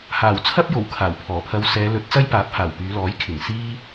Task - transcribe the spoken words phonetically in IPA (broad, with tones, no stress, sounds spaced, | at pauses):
h aː˨˩ w t͡sʰ ɐ˥ p̚ j o˨˩ w kʰ aː˨˩ w pʰ ɔː˨˩ pʰ ɐ˧ w s ɛː˨˧ l ɵ˨˥ t̚ t͡s ɐ˥ j p aː˨˥ p̚ h aː˨˩ w p yː˨˧ l ɔː˨˥ j kʰ ɪ˨˩ ŋ s iː˧